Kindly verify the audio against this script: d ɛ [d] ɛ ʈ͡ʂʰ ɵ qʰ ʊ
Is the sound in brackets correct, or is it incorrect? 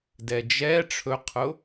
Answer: incorrect